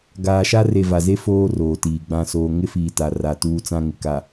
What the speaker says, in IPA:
ɡ aː˨ ʃ a˦ r e˨ v a˨ z e˦ f oː˦ r oː˨ t iː˨ ɡ͡b ã˨ s oː˨ ŋ ɪ˦ f iː˨ t a˨ r a˨ t uː˦ t͡s ã˦ ŋ ɪ˨ k a˨

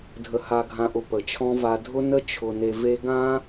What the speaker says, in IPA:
dʱ ə˨ h a˨ ɡʱ ã˨ ʔ ʊ˨ p ə˨ t͡ʃʰ ɔ̃˧ v a˨ dʱ ʊ˧ n ə˧ t͡ʃʰ ʊ˨ n e˨ v e˧ ɡ ã˦

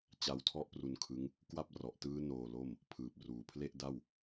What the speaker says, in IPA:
t͡ɕ a˦˥ w tʰ ɔ˥˩ ʔ p r u˧ n kʰ ɯ˦˥ ŋ | k w a˥˩ p̚ r ɔ˨˩ ʔ t ɯː˦˥ n oː˧ l o˥˩ m | pʰ ɯː˨˩ p̚ r uː˨˩ pʰ l e˥˩ ʔ d a˥˩ w

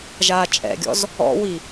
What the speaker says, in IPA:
ʒ aː t͡ʃʼ ɛ̰ ɡʲ ɔ̰ z | ɔ̰ w i

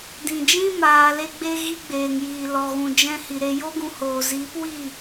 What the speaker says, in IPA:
d ĩ˨ d͡ʒ ĩ˦ m aː˨ l e˧ ɡ͡b e˧ ɣ i˦ ɡ͡b eː˨ ŋ j iː˨ l ɔ˨ ɣ ũ˨ d͡ʒ ɛ̃˧ h i˨ ɾ e˧ j o˦ ɡ ũ˧ h oː˨ z iː˨˦ p w i˦˨

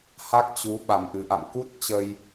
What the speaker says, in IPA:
h a˦˥ k̚ t͡ɕ u˨˦ ɓ a˨˩ m ʔ ɨ˨˩ ʔ a̰˧˨ m k u˦˥ t̚ t͡ɕ ə˧ j

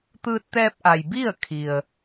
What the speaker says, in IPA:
t̪ ɯː˧ t̚ t̪ ɛː˧ p̚ ʔ a˩ j b i˥˨ ə̯ kʰ i˩ ə̯

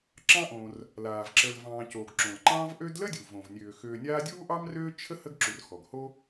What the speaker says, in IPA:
ǁ ɑ̃˦ ʔ õ˨ r | l aː˩ v ǁ ə˨ l v ɑ̃ː˨ c o˩ ɡ ǁ õ˩ l ǃ ɑ̃ː˦ v ʔ ø˦ d l ə˥ dʲ u˩ v õ˩ v nʲ øː˩ x øː˨ nʲ aː˦ dʲ uː˥ ʔ ɑ˥ m r øː˥ t͡ʃʰ ə˥ h ə˥ ɡ ǁ u˨ r x ɔ˩ ɡ h o˥

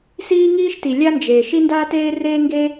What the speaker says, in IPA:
s iː˥ ŋ iː˥ ʃ t i˩ lʲ a˥ n d͡ʒ eː˩ ʃ i˥ n d aː˥ t eː˥ r eː˥ ŋ ɡ e˥

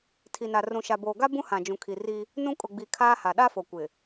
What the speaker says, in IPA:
tʰ i˨ n a˨ r ũ˨ ʃ a˨ b oː˨ ɡ a˦ b ũ˦ h ã˨ d͡ʒ ũ˨ kʰ i˨ r i˦ | n ũ˦ kʼ ʊ˨ ɡ͡b i˨ kʰ aː˦ h a˨ ɗ a˦ f o˨ kʷ ɪ˨

